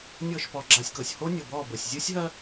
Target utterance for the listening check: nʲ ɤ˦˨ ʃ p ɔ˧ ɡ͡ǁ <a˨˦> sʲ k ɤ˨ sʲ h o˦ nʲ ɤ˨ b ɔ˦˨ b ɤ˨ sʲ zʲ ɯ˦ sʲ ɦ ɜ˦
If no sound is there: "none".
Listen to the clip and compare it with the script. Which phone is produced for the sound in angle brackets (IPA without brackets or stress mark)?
a˧